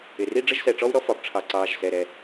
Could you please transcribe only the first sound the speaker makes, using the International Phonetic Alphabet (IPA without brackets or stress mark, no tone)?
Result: ɪ